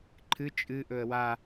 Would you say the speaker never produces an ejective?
no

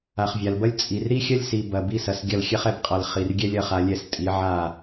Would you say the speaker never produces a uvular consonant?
no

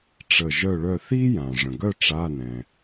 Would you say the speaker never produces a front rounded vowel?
no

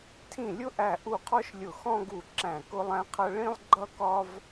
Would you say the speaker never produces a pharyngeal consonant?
yes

